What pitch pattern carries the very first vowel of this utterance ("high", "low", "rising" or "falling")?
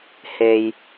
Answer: low